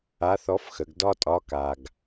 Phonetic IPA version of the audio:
a˧˥θɔ˧˥fxə˩˧ɡ dɒ˥tʼɒ˧˥ ka˧ɡ

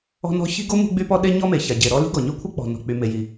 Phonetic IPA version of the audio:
ɔ̤˥nɔ̤˥ çi̤˥ɡo˥ mṳ˥ɡ͡by˥pɔ˥ ɗe˥ɲɔ˥me˩ ça˩ɟe˩ɾɔ˥ li̤˥ɡɔ˩ɲø˥kʷʰœ˥ k͡pɔ̤˩ nɔ̤˩k͡py˩me˩ ji˩

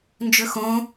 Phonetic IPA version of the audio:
nd͡ʒɵxõ

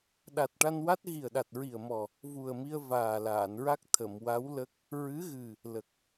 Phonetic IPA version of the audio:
ɗa˨˩t̚ʈa˧nwa˦˥t̚ ɣi˨˩ə̯ɗa˨˩t̚ɹi˨˩ə̯mɔ˨˩ | vu˨˩ə̯mi˧ə̯ vaː˨˩laː˨˩˨nɹa˦˥k̚ t̪ʰə˨˩˨mwa˧˥wlə˦˥k̚ | ɹɨ˧˥ɣɨ˨˩ | lə˨˩k̚

